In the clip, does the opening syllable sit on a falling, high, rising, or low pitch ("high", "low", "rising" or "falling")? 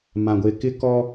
low